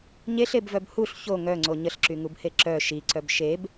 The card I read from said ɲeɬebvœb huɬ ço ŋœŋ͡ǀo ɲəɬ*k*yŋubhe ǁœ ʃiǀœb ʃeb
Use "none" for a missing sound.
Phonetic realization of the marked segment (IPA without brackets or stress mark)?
ǁ